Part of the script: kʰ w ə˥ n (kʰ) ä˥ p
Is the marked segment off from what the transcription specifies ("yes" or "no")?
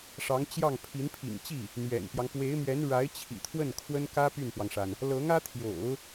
yes